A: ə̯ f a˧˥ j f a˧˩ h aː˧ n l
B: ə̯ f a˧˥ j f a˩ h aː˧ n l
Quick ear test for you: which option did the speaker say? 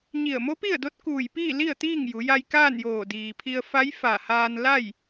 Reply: A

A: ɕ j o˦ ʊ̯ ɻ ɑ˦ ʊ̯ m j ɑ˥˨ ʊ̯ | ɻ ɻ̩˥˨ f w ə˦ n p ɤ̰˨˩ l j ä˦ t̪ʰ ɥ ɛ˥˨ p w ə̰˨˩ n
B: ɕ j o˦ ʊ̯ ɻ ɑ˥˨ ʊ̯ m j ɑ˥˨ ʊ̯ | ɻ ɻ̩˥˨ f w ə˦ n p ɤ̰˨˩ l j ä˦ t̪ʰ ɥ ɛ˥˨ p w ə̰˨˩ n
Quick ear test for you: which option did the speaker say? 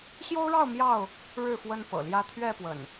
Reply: B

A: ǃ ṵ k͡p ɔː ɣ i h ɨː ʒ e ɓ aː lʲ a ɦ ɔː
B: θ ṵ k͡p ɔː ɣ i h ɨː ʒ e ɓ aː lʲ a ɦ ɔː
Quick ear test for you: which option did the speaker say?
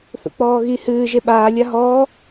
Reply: B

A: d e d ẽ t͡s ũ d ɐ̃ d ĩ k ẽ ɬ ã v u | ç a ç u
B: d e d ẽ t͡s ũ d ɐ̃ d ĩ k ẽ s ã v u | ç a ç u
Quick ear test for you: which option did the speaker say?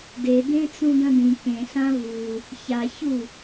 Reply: A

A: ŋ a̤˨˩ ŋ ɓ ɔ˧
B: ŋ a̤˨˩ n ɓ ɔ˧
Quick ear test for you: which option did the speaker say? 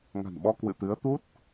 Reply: B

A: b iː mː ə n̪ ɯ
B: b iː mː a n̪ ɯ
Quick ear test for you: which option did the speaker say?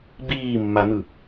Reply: B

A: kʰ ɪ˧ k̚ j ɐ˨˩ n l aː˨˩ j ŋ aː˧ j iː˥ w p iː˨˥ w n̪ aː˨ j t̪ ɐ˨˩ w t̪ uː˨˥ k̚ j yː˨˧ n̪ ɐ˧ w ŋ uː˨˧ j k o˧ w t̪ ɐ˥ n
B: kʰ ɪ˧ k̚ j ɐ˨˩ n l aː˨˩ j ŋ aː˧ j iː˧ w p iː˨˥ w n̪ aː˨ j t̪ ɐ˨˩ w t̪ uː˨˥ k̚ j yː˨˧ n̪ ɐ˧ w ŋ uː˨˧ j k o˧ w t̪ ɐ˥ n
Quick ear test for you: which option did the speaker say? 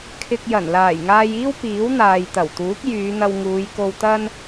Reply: A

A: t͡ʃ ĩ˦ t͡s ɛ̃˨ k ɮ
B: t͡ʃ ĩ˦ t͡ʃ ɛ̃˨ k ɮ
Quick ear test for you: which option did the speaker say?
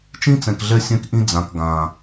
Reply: A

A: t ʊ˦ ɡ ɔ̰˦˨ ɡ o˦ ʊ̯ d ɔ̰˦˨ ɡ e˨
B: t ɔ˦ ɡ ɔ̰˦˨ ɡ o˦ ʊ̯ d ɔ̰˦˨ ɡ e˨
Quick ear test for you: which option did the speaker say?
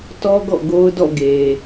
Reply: B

